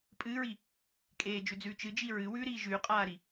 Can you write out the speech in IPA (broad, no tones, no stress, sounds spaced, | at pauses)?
pʼ ɨː ɹ i | kʼ eː d͡ʒ ʉ d͡z ʉː t͡ʃ ɨ d͡ʒ i ɹ ɨ w ʉ ɾ iː ʒ ʉː qʼ aː ɾ i